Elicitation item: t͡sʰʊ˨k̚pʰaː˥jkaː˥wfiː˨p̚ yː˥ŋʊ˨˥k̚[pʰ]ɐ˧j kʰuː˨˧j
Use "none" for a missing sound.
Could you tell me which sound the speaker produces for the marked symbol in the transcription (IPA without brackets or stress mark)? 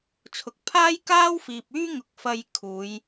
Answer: f